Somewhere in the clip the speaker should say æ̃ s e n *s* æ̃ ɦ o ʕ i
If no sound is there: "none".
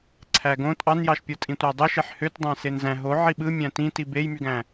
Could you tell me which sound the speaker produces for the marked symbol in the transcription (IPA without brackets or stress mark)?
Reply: z